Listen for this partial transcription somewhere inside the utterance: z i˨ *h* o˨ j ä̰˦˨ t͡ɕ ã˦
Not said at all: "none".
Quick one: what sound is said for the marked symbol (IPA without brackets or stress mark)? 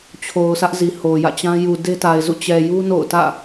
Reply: h